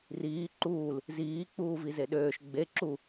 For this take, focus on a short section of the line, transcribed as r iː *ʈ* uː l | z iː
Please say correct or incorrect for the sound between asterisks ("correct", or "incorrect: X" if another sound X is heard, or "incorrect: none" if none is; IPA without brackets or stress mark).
incorrect: ǃ